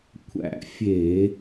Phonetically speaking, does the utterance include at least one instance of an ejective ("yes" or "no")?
no